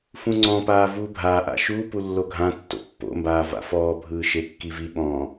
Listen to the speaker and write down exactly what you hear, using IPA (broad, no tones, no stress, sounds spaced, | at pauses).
f ũ ŋ͡ǀ ɔ̃ p aː v uː bʱ a ʔ a̰ ʃ u p u lː o ɡʱ ã tː o̰ pː o̰ m b aː v a̰ f ɔː bʱ ɯː ʃ e kː i v i ɓ ɔ̃ː